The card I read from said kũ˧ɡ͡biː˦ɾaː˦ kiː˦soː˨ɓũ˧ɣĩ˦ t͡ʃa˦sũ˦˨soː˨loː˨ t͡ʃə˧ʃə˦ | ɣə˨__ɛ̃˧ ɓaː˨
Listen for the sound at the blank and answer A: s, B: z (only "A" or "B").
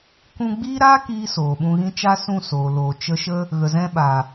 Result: B